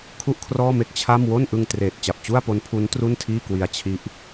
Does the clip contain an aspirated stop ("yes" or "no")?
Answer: yes